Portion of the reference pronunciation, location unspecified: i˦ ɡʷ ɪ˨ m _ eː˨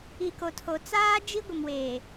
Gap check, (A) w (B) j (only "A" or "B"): A